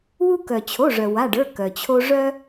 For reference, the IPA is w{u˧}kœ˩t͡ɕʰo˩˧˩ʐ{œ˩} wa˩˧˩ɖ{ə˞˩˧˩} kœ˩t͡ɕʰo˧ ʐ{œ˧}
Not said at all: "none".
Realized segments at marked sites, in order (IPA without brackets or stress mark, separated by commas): u˧, œ˩, ə˞˩˧˩, œ˧